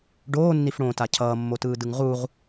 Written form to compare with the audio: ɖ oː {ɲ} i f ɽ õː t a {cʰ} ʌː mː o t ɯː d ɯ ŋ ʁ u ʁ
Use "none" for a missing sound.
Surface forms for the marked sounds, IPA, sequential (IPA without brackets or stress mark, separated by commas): nː, cʰ